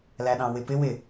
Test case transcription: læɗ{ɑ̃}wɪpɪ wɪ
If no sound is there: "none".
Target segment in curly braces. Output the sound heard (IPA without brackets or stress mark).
ɑ̃